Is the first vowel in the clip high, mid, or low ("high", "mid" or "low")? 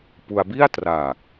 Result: high